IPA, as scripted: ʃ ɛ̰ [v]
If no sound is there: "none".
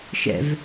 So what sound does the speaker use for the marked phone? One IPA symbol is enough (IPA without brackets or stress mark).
v